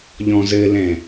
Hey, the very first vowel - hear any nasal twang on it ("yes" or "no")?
yes